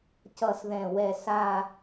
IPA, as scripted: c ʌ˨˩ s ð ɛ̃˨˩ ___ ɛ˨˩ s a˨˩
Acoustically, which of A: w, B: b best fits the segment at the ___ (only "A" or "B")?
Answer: A